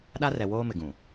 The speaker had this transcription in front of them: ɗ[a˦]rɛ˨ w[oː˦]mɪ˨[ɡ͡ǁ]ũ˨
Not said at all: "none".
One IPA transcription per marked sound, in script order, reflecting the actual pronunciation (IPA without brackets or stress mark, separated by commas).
a˦, oː˦, ɡ